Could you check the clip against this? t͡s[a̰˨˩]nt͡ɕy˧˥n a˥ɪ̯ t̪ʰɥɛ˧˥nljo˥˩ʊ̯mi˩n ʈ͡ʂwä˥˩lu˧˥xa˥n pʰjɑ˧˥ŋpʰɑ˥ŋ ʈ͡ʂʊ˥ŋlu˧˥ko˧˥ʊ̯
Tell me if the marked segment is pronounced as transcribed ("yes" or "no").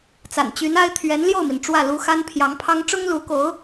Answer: yes